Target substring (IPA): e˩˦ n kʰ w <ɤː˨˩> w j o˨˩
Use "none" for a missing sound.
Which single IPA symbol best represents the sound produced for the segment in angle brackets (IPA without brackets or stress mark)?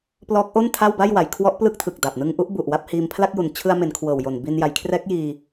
ɤː˨˩